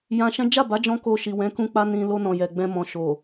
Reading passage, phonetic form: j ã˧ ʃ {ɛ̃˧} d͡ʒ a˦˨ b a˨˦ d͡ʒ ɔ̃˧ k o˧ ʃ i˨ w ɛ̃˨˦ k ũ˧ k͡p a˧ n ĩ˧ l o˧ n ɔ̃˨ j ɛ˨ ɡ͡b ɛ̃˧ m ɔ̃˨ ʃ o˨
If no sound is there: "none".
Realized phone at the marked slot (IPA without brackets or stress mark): ɛ̃˦